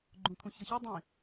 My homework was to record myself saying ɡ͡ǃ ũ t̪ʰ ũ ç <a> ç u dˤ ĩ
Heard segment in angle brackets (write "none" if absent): ʌ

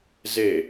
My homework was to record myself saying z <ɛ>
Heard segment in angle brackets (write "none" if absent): e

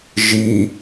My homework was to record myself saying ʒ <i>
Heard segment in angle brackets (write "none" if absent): i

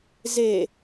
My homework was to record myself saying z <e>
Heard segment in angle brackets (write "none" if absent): e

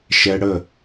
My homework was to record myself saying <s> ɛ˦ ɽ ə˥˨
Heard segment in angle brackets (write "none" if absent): ʃ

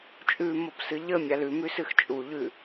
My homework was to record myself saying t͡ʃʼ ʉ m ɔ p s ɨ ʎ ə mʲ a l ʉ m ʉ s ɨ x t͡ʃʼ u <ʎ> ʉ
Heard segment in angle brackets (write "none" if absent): ʎ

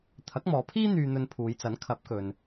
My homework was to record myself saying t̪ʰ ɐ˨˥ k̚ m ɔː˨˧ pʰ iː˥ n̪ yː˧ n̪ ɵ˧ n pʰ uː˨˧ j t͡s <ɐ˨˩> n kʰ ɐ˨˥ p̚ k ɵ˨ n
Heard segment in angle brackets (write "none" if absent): ɐ˨˥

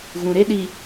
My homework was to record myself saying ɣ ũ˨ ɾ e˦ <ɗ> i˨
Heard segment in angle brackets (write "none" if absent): ɗ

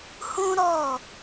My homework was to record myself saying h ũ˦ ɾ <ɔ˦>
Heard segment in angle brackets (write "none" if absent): ɔ˦˨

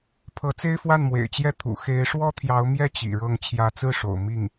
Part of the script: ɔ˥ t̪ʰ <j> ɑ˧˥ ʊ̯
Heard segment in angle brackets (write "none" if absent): j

